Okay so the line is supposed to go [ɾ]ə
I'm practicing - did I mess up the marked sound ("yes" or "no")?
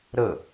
no